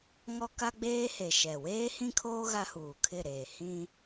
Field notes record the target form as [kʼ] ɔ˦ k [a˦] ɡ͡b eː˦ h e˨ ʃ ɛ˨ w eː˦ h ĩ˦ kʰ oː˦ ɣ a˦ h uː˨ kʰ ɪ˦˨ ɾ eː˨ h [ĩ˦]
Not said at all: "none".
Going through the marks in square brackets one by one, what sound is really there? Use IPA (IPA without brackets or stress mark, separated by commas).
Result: ŋ, a˦, ĩ˦